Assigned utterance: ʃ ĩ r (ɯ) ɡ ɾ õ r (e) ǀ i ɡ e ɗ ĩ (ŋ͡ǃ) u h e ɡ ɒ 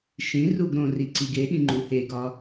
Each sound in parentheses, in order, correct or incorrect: incorrect, incorrect, correct

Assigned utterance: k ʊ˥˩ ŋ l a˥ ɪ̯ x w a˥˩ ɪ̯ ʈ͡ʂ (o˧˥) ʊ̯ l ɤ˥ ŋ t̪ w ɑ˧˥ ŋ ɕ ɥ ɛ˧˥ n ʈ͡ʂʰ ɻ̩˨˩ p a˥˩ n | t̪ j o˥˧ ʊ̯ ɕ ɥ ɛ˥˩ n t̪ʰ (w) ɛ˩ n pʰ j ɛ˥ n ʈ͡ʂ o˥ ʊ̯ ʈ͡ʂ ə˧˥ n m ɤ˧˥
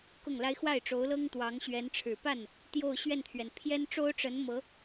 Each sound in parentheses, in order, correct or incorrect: correct, incorrect

